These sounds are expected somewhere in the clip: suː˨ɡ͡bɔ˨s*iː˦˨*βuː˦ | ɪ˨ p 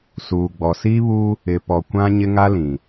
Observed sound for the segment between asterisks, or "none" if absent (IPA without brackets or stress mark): iː˦